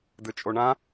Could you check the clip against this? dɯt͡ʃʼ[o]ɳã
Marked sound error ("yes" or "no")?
no